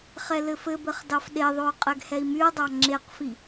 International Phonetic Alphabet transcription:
χɛlɘfɘbɘχ dɑfɗeðˤou̯ qʼɛɡhɛi̯myu̯dˤɑ ŋ͡ǁeqfi

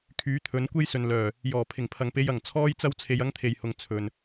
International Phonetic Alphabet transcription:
kʰyː˨˥t̪ʰɵ˨˧nkʷe˥jsɵ˨n lœː˨˩ | jɔː˨˩ pʰɪ˨˩ŋpʰɐ˨ŋpe˧j ɐ˨˩ŋt͡sʰɔː˥jt͡sɐ˥w t͡sʰe˧jɐ˥ŋ t̪ʰe˨jhʊ˨ŋ t͡sʰɵ˨n

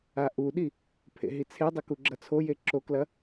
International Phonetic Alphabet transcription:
aʔuɗi | pʰḛɦit͡sʰedˤɵ kuɡ͡ǁɐt͡sʰoje ǁoklɐ

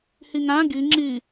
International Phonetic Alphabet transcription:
hiŋæ̃ ɡi ŋ͡ǁi

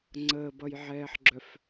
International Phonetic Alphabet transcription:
ŋ͡ǀəːbʌjʕɛːħɡ͡ǁœf

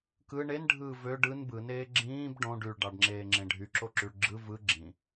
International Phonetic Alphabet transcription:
kɯ ɳenɖʱɯː vø ɖɯn bɯneː ɡ͡ǁĩːb ɖõɖ yɭɖɑɖŋ͡ǁeːŋ͡ǁẽ ɖʱyǁoǁyɭ ɡ͡ǁɯ vɯ ɡ͡ǁĩ

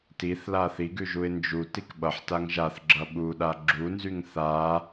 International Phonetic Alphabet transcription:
tiθla θiɡʉʒuɪ̯ nd͡ʒutik ɓʌħtaŋ ʒaθɡ͡ǁʌ ɓuɗa ɡ͡ǁunzyŋ θa

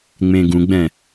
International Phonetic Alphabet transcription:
ŋ͡mẽɡũɡ͡bɛ̃

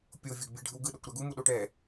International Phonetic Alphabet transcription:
pʲovʲoɡbʲɛɖʱɯw ɡɯɗokʷɾa ɡumuɗo ʈɛ

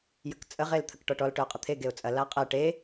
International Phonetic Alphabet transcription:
jəkt͡sʼə ʁelt̪ʰəkʈɔʈɔl ʈœʊ̯qʼət̪ʰe ɡeʊ̯t͡sʼɐ laqʼɛ ʈe

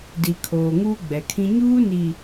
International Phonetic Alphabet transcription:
di˨kʰoː˨ ŋuː˦ɡ͡bɛ˨kʰĩ˦ ɲuː˦ni˨

